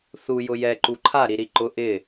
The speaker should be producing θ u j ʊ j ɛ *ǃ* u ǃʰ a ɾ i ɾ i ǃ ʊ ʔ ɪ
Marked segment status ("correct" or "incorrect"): correct